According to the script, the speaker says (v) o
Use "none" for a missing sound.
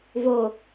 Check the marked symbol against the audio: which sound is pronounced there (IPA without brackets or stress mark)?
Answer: v